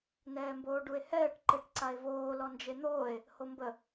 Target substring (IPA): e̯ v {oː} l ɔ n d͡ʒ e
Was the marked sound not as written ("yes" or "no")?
no